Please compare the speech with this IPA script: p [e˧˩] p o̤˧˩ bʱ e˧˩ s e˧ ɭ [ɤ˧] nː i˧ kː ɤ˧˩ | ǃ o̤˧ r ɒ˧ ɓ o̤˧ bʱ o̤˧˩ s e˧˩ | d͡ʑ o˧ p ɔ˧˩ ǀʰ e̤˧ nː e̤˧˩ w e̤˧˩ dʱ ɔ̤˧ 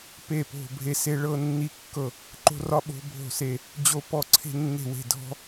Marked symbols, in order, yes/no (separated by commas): yes, yes